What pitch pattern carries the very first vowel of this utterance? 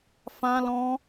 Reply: high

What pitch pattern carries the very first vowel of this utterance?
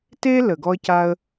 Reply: high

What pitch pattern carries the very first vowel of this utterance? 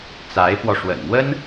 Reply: rising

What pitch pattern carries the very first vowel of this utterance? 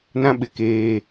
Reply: high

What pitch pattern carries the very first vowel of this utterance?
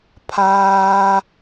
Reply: high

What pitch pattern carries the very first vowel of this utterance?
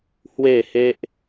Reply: falling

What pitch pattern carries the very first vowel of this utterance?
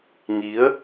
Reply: rising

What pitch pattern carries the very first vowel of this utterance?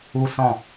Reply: high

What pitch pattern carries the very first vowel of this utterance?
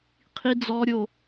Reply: high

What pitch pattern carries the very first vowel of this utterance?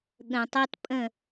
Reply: low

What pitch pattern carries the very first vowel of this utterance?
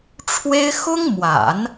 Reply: high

